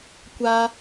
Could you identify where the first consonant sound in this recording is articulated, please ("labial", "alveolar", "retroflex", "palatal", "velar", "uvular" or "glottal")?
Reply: velar